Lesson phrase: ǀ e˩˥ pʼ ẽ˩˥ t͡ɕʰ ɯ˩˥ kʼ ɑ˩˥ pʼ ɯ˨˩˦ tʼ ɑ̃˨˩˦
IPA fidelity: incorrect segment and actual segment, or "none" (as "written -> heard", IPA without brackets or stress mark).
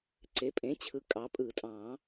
none